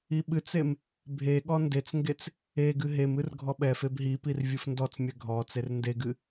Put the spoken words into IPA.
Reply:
i ɓ ɨ t͡s e m | bʱ e ɠ ɔ n d e t͡s ŋ ɡ e t͡s | e ɡ ɨ ɦ e m ɨ r ɡʱ ɔ ɓ ɛ f e b ɦ i p i r vʲ ɨ f n d ɔ t͡s mʲ ɛ ɡʱ ɔ t͡s e r n d e ɡ ɨ

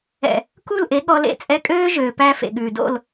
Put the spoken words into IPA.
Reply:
ɛ̰˨ | k u˦˨ l ʔ e˨˦ ɠ ɔ˧ l ḛ˧ t͡sʼ ɛ˧ kʼ øː˦ ʒ øː˨ p æ˧ f ḛ˨ ɠ ʉː˨ d o̰˦˨ l

